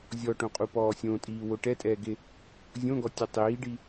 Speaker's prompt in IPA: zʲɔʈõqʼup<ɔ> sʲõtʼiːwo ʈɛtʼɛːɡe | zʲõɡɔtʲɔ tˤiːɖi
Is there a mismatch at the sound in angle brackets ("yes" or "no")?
yes